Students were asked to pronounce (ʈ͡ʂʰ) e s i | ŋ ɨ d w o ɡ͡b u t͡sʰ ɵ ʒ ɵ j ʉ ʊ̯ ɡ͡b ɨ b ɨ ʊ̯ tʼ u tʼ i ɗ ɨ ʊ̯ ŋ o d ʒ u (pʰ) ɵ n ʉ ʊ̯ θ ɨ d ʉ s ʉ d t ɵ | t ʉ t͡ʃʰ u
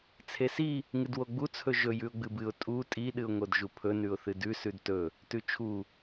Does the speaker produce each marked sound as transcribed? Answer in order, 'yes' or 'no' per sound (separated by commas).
no, yes